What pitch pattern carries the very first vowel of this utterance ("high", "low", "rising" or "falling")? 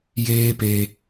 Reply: high